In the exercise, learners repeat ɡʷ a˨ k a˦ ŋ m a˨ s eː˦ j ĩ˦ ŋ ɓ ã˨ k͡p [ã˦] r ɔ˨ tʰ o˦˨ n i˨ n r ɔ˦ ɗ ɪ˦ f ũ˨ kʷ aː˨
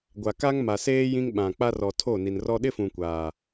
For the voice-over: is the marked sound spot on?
no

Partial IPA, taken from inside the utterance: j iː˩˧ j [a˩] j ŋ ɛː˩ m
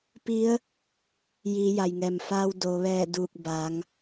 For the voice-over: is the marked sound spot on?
yes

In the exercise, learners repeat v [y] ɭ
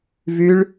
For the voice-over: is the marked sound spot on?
yes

